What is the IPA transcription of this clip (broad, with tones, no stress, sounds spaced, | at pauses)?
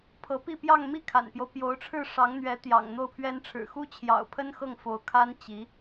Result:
pʰ ɤ˧˥ p i˥˧ p j ɑ˥˧ ŋ m i˥˩ kʰ a̰˨˩ n p j o˦ ʊ̯ p j o˧˥ ʊ̯ ʈ͡ʂʰ ɻ̩˥˩ ʂ ɑ˧˥ ŋ n̪ ɥ ɛ˧˥ t̪ j ɑ̰˨˩ ŋ n̪ o˥˩ ʊ̯ pʰ ɥ ɛ˥ n ʈ͡ʂʰ ɻ̩˨˩ x u˥ t͡ɕʰ j ɑ̰˨˩ ʊ̯ pʰ ə˥ n x ɤ˥˩ ŋ f o˧˥ ʊ̯ kʰ a˥ n t͡ɕ i˧˥